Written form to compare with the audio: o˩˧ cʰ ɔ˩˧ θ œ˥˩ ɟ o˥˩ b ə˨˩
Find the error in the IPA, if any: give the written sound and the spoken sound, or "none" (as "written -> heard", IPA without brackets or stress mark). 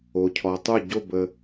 θ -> tˤ